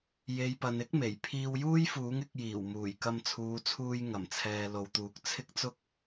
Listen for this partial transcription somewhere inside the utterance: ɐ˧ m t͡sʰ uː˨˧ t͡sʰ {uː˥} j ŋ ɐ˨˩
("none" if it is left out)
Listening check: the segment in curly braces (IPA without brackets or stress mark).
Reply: uː˧